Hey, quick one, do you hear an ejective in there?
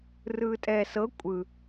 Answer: yes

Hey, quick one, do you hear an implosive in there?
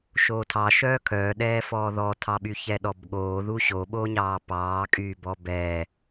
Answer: yes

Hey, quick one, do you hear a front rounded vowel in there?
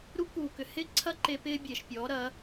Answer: yes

